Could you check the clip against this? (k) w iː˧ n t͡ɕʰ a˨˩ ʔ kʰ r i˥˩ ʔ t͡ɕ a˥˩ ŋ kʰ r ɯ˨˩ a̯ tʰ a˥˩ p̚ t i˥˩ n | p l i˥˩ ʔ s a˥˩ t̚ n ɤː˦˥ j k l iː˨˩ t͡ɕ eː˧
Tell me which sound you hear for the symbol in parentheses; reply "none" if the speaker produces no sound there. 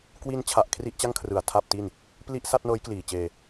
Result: k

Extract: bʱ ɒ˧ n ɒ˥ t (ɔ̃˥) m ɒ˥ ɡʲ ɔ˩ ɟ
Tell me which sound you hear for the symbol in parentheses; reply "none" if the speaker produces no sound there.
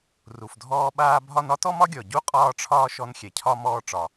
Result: ɔ˥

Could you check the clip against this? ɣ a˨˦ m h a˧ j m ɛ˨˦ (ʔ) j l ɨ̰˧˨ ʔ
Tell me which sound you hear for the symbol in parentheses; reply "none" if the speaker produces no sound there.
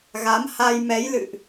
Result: none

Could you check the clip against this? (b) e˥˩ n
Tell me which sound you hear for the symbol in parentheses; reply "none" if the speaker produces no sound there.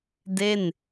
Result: d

